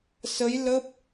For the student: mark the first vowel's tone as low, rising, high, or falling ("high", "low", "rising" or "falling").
rising